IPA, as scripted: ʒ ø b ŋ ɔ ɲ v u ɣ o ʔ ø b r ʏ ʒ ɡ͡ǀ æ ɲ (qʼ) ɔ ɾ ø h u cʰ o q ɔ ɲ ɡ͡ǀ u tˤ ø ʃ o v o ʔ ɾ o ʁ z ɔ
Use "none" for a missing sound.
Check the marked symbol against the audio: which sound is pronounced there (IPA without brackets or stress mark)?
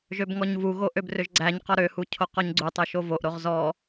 q